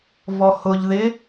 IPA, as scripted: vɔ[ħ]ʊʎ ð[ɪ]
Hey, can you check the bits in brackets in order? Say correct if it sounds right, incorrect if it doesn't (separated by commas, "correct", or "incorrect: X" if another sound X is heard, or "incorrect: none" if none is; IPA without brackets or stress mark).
incorrect: h, correct